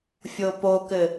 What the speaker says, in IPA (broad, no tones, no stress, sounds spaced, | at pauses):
fʲ o p o k ɘ